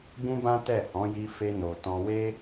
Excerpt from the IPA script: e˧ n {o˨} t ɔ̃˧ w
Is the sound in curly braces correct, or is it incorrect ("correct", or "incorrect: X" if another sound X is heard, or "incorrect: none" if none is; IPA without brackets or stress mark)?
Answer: correct